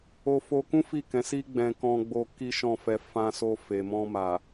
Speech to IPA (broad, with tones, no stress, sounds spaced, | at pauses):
o˧ f o˧ k ũ˦ f i˦˨ k ɛ̃˨˦ s i˦ ɡ͡b ɛ̃˧ k ɔ̃˧ ɡ͡b o˧ k i˦ ʃ ɔ̃˦˨ f ɛ˧ f ã˧ s o˧ f e˨ m ɔ̃˧ m a˨